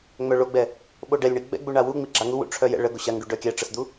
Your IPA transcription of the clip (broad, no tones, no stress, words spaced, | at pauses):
ŋ͡mœɭoɡ͡bɛ | ɓoɖɛlʲɳi ɡ͡bɛ̰ɡ͡bu ɳawu ŋ͡miɡ͡ǁaŋuwṵ ʈ͡ʂʰœjɛ̰ɭə ɡoɕaŋɖu ɖœkʲɛʈ͡ʂəsd̪u